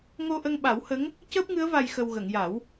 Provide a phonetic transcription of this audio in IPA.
ŋo˧ʔə˧ŋɓa˨˩˦whə˧˥ŋ | cəː˦˥p̚ŋɨ˧˥ə̯ va˧jxə˧w ɣə˨˩˨ŋja˨˩˦w

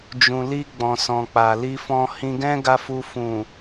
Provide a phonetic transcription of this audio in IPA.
d͡ʒũ˨li˧ ɡ͡bɔ̃˨sɔ̃˨k͡pa˨ li˧fɔ̃˧hĩ˧ ɡɛ̃˦ɡa˧fu˧ fũ˨

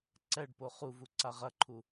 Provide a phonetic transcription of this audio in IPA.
ǀɛɖpo χuvu ǀaʁɐǃʰu

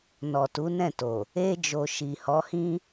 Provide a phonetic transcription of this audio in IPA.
nɔ˨tu˨˦nɛ̃˦˨to˨ | e˦d͡ʒo˧ ʃi˨hɔ˨˦hĩ˦

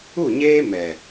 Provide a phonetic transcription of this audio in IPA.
u˦˨ɲeː˦ mɛ˨

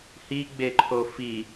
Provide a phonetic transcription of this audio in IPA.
hiɡ͡beǃʰo fi

